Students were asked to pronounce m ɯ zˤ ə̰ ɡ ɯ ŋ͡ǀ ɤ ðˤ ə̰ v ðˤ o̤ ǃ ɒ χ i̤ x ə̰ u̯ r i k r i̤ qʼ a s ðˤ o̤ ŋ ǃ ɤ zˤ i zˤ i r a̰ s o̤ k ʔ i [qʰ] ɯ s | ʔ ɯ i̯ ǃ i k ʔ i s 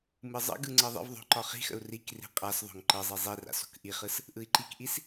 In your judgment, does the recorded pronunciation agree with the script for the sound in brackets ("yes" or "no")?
no